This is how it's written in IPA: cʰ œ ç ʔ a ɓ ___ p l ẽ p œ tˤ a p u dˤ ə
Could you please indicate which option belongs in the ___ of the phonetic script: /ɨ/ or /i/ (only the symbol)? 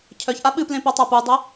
ɨ